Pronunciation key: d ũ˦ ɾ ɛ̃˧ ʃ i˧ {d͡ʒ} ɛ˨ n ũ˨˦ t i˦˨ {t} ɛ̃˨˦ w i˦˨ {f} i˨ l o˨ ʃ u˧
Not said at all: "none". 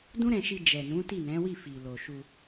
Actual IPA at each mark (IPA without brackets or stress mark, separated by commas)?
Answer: d͡ʒ, n, f